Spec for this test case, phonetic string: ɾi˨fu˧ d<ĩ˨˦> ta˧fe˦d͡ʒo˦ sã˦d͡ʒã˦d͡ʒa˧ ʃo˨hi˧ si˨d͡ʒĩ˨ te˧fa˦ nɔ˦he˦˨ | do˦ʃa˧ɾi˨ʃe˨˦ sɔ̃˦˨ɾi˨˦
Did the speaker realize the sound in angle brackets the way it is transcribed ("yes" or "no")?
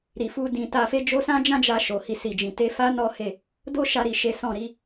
no